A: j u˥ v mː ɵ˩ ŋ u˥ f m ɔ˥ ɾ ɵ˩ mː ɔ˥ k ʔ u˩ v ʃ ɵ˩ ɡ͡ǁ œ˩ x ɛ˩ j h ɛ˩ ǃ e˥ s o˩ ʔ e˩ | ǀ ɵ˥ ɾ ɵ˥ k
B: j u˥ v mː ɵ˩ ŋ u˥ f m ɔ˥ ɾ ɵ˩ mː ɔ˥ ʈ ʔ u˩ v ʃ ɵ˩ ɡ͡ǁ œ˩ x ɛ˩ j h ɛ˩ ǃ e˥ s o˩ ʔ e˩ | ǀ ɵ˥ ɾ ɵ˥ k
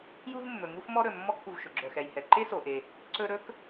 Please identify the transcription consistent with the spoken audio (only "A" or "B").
A